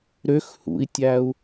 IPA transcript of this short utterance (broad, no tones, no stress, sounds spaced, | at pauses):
ɾ ø x h ṵ i̯ tʲ æ u̯